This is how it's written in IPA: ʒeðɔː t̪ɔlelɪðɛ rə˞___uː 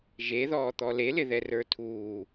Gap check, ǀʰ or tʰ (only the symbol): tʰ